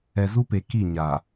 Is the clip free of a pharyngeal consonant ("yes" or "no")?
yes